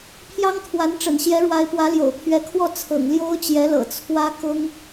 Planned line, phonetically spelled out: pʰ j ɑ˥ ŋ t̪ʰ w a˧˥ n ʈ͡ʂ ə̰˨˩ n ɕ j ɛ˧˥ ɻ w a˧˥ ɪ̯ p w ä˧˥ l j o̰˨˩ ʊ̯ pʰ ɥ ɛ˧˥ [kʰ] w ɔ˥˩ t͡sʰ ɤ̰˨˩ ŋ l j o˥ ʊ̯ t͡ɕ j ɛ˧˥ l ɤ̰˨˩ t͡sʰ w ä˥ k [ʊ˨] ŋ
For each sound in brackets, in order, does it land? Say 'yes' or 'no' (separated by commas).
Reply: yes, no